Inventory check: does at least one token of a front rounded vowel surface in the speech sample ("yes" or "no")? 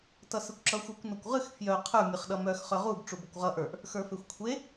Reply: yes